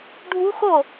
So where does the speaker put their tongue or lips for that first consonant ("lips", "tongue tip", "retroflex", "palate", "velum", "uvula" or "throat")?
retroflex